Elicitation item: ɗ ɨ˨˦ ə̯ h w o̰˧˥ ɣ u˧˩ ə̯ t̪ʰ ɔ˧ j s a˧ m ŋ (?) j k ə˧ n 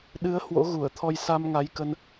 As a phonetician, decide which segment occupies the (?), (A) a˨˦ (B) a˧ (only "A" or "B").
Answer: A